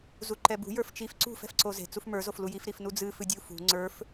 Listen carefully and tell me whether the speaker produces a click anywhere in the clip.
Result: yes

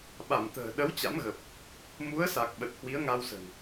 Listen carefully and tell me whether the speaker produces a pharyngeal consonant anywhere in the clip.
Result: no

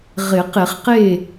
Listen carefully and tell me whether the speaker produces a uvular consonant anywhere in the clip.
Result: yes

